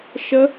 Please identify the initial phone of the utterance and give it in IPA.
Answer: ʃ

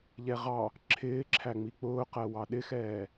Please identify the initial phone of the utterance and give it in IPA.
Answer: ʎ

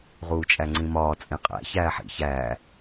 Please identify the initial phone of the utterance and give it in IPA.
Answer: ʁ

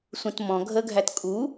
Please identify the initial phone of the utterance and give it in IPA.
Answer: sʷ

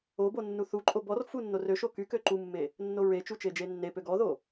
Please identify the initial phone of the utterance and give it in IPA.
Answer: o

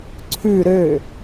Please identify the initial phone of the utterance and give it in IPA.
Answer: ǀʰ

